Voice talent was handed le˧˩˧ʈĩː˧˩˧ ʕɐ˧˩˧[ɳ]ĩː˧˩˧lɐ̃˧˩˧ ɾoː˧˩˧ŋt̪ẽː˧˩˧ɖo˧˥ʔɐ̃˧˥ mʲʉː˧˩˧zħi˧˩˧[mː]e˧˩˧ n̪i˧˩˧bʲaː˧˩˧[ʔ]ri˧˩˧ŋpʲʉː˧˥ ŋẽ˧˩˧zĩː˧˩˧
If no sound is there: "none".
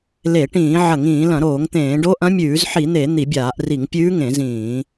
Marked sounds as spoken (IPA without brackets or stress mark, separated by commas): ŋ, n̪, ʔ